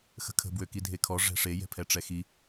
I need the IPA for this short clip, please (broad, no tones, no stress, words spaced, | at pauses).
xə̤kʰə̤ bwøkidʱekʰɔ ʐɛ̤ʂe jɛ̤pʰɛʈ͡ʂɛxi